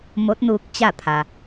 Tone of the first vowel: rising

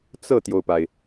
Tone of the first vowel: falling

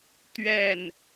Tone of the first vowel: falling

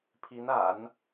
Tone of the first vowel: rising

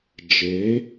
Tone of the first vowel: rising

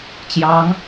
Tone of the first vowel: rising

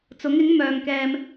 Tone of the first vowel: rising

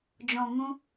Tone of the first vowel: low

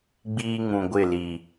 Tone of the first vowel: high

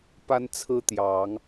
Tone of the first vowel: high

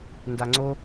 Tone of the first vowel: low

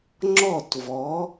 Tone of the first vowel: falling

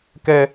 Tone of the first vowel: high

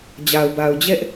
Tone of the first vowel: low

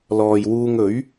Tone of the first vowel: low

